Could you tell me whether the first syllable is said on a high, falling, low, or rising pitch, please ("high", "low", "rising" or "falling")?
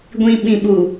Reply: low